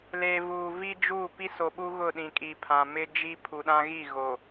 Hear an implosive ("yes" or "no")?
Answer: yes